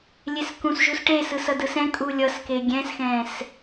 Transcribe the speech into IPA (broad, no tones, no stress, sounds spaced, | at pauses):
lʲ e s k ũ s ʒ u s ʈ e s ɯ s ʌ d ɯ s ɛ̃ kʼ u lʲ ʌ s k e ɡʲ ɛ̃ s x ɛ̃ː s